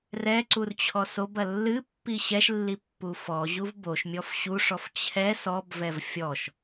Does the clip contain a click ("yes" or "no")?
yes